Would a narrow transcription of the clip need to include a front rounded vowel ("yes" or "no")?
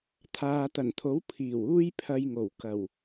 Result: no